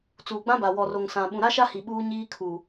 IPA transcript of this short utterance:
t͡s uː˨ ɡ͡b ã˦ b a˨ w ɔ˨ r o˨ ŋ s ã˨ ɓ ũ˨ ɾ a˦ ʃ a˦ h i˨ ɓ uː˦ ɲ iː˦ kʰ uː˨

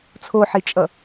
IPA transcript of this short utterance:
t͡sʰ o ħ i t͡ʃʼ ʌ

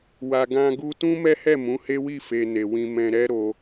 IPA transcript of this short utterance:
w a˨ ɡ ã˧ ɡ u˧ t ũ˦ m ɛ˦ h ɛ˦˨ m ũ˨˦ h e˦ w i˦˨ f e˨ n e˨ w ĩ˧ m ɛ̃˧ ɾ ɛ˦ ɾ o˧

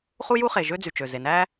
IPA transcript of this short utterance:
χ u˥ j u˥ χ e˩ ʒ ø˥ d͡z y˩ t͡ʃ ø˩ z e˩ n æ˥

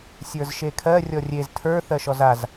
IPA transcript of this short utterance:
sʲ ə˞ z ʃ e kʰ ɜ rʲ ɔ rʲ e z tʰ ə˞ θ ɜ ʃ ɔ z a z

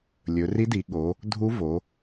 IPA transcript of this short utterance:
lʲ ɵ˩˧ r i˧˥ d i˩˧ ɠ o˩˧ | dʱ u˧˥ v o˩˧

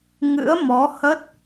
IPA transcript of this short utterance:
ŋ ɨ̰˧˥ ə̯ m ɔ˨˦ h ə˦˥ t̚

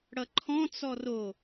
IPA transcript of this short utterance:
ɽ ʌ ǃʰ ɔ̃ t͡s ɔ r o

